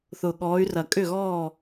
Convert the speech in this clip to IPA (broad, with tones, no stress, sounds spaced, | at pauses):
θ ʊ˨˩ ɠ ɔː˨˦ y̯ r ɐ˨˩ kʼ ʏ˥˩ ɣ ɔː˥˩